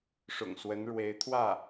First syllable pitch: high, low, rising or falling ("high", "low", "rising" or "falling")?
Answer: low